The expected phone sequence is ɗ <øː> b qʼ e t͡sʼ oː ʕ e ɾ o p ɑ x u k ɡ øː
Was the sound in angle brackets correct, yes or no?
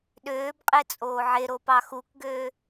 yes